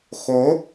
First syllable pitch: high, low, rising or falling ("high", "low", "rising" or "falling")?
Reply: rising